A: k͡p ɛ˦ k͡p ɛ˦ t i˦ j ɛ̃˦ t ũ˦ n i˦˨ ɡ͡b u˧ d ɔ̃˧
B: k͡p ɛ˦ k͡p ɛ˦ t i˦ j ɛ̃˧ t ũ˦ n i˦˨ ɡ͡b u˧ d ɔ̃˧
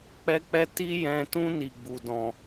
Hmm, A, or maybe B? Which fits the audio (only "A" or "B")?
B